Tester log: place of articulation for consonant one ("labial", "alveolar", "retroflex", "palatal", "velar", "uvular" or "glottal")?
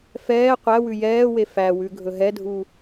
labial